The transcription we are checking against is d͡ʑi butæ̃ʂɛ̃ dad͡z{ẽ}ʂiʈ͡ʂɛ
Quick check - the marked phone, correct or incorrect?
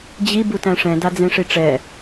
correct